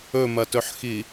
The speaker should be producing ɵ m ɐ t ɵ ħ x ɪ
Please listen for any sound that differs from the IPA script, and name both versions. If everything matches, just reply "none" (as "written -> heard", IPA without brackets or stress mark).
ɪ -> i